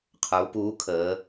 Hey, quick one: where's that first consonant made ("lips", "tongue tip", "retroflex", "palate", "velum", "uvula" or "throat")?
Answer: uvula